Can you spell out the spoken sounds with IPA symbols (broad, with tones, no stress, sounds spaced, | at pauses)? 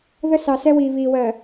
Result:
ð ə˦ s ɑ˨ s ɛ˦ w iː˨ β iː˨ w ɜ˨